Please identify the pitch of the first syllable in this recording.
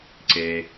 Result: low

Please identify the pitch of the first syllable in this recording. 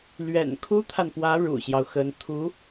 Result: low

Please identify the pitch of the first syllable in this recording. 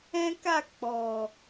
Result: high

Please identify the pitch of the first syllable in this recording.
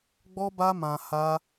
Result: high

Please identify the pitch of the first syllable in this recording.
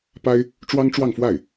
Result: high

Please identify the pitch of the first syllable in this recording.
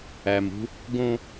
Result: low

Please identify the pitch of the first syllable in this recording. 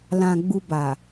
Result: low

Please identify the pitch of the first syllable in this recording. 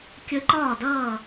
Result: rising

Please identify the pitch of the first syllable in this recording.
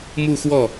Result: falling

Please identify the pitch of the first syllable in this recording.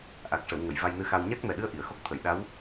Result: low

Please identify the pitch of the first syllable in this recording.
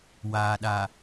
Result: low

